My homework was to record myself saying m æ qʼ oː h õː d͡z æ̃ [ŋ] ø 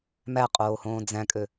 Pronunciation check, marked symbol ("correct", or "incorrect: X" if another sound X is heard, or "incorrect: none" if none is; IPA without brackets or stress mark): incorrect: kʼ